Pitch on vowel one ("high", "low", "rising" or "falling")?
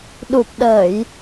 low